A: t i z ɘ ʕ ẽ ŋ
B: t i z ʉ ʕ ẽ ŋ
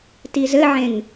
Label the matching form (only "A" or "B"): A